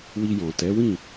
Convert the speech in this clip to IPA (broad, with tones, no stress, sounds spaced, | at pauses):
w i˧ j ɔ̃˨ t ɛ˨˦ w ĩ˦˨